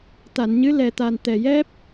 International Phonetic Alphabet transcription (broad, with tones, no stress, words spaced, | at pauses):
t̪a˨˩˨nɲɨ˧˥ lɛ˨˩t̪a˨˩n t̪ɛ˨˩jɛ˦˥p̚